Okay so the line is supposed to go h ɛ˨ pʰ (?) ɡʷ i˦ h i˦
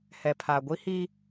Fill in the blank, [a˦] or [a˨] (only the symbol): a˨